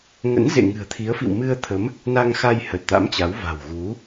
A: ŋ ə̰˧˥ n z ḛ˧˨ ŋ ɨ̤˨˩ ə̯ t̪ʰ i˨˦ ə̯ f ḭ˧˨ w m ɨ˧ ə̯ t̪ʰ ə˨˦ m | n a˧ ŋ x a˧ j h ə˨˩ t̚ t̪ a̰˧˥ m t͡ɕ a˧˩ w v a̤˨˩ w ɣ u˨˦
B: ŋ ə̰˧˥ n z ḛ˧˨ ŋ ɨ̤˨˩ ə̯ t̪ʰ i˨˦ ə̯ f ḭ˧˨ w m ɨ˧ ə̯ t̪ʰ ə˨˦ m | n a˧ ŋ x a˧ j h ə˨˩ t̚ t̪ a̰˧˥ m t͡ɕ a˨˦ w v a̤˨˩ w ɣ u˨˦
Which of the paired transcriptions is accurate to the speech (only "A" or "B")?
B